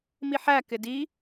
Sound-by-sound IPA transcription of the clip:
m i ħ æ k ɪ d i

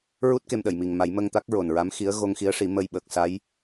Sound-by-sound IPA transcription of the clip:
ɹ u˦˥ t̚ k e˧ m ɗ ə˨˩˨ j m i˨˩ ŋ m a˨˩˦ j m ə˧ ŋ t̪ a˦˥ k̚ ɹ o˨˩ n ɹ a˧˥ m x i˧˥ ə̯ ɣ o˧ ŋ x i˧˥ ə̯ ʂ i˨˩˦ m ə˧ j ɓ əː˨˩ k̚ s a˧˥ j

